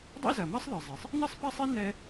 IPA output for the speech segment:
dˤḭ˥zɐ˩ mɐ˥sˤðɨ˩zˤe˩sˤ | nɨ˥sˤpa˥sˤi˥ nɛ˥

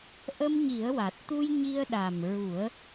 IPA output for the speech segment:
ʔə˧mɲi˨˩˦ə̯wa˨˩t̚t̪u˧j ɲi˧ə̯ɗa˨˩m ɹu˨˩˦ə̯

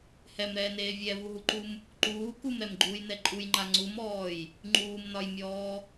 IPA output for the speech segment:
hɛmɾɛːneː vʲɛvuɦuǃum | ǃuː kumɾɛmɡ͡ǃuːjnɛ ǃʼujŋ͡ǃa ŋ͡ǀumɔːj | ŋ͡ǃuːmnɒjmʲɔː

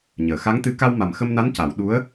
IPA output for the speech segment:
ɲəː˨˩˨xa˧˥ŋt̪ɨ˧˥ ka˧wma˨˩mxə˧mna˧˥n ca˨˩˦w ɗu˧˥ə̯

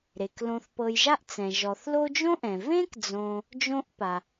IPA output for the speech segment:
ɾe˩klõ˨θpɤ˨jʒa˦ʔ t͡sɛ̃˩ʒɔ˩θ lo˦d͡ʒõ˥ʔɛ̃˩ vẽ˥kd͡zõ˨ | d͡ʒõ˥ʔpa˩

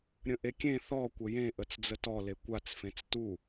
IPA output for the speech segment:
ɾʲə̃ʔekʲẽ θɔ kʷəjẽ ʔət͡sd͡zətɔ lekʷat͡s fẽt͡stu

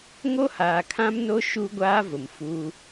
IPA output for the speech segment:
ŋo˦haː˨kʰã˦mno˦ ʃu˦ ɡʷaː˦vʊ˨mfu˦

